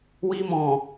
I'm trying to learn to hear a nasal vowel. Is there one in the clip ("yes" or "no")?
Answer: yes